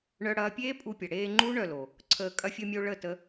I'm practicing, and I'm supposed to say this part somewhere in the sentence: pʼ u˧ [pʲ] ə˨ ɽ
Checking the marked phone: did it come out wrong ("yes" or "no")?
no